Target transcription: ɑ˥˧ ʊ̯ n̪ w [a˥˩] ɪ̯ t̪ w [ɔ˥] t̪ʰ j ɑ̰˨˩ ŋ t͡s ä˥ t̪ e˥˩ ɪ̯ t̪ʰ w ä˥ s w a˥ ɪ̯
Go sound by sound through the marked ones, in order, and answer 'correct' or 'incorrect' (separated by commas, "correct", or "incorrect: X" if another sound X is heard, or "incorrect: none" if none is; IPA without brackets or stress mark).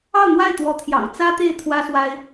correct, incorrect: ɔ˧˥